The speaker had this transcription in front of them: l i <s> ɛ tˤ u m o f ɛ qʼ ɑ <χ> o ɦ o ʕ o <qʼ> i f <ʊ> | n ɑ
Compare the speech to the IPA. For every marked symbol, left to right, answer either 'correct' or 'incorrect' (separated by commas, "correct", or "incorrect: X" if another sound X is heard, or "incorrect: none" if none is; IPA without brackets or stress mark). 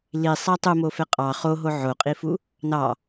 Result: incorrect: sˤ, correct, correct, incorrect: u